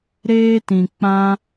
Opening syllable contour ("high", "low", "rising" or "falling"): high